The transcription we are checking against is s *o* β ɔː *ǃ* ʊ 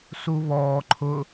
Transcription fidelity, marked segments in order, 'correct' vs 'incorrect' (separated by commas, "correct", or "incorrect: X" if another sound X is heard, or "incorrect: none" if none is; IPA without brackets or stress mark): incorrect: u, incorrect: ǃʰ